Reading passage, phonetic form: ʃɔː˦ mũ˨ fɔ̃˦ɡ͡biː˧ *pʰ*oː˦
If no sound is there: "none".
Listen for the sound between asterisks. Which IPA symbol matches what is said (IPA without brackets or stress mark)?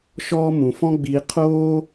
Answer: qʰ